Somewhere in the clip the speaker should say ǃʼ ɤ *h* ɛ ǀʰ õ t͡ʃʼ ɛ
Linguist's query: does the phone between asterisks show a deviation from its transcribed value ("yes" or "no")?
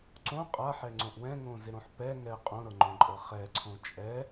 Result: yes